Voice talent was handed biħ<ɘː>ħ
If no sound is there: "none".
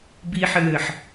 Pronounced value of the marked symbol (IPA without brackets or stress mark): ɘː